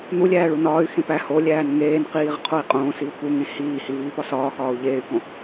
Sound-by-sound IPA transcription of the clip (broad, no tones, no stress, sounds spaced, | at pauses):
n̪ u lʲ æː ɭ u n ɒː y̯ x ẽ p æ h o lʲ æː n ŋ eː n q iː ʁ qʰ o i̯ qʼ õː s i u̯ p u ŋ ẽ h iː h i v iː p ɒ s ɒː x ɒː u̯ ʎ eː y̯ k õ